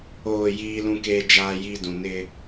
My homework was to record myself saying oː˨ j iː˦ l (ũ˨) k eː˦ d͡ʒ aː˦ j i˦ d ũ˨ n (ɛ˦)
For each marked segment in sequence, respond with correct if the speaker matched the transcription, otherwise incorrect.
incorrect: ũ˦, incorrect: ɪ˦

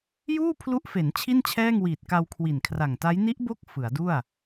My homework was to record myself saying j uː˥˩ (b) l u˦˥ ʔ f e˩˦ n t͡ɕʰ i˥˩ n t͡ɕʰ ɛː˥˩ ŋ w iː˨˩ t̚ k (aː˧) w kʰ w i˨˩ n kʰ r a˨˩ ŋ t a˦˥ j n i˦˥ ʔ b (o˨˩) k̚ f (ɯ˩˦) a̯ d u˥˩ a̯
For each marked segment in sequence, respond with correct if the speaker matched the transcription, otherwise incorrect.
incorrect: pʰ, incorrect: a˧, incorrect: o˦˥, correct

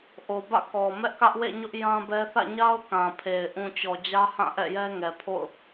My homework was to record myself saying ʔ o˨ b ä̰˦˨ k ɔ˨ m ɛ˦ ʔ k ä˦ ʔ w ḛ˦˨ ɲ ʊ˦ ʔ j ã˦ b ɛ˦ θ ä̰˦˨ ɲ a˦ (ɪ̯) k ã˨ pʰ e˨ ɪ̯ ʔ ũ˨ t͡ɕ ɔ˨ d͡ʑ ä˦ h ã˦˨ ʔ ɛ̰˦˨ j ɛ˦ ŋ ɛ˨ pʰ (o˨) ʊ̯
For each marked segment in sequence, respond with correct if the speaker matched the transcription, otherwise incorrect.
incorrect: ʊ̯, incorrect: o̰˦˨

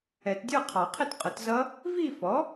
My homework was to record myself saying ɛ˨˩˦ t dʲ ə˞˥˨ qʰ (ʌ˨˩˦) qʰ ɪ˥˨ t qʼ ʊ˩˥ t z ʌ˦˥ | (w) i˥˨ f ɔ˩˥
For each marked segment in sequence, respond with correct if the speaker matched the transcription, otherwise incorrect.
incorrect: ɑ˨˩˦, incorrect: v

